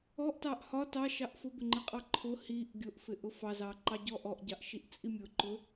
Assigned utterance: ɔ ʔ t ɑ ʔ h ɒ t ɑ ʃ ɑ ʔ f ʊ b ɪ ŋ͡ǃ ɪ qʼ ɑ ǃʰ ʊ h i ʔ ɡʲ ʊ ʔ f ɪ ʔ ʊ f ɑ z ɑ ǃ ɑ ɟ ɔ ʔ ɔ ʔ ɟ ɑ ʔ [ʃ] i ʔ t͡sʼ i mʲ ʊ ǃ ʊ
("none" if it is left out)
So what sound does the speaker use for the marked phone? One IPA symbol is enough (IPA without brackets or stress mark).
ʃ